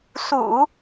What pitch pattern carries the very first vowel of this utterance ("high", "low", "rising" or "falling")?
low